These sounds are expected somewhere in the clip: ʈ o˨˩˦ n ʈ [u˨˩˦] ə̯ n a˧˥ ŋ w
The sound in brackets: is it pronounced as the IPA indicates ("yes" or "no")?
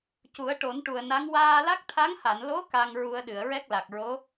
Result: no